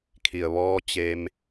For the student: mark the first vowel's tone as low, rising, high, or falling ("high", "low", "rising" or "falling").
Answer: low